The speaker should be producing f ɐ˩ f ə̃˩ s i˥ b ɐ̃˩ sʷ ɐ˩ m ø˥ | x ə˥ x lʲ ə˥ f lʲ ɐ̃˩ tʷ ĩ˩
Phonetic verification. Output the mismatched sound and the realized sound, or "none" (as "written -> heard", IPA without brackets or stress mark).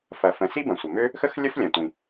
none